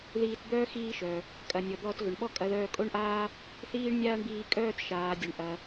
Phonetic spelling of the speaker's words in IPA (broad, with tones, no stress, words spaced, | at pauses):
ðiː˧td̪œː˥ xiː˧ʃœ˩ | kʼɐ˩nʲɔ˩d̪ɔː˧t ɣʏ˩ɳɓɔ˥ kʼɐ˧ðœː˧ kʼo˥ɳʔaː˥ | θiː˥ɳnʲaː˥ɳbiː˧kʼœː˥t ʃaː˩dʲœ˩ɳʔɐ˩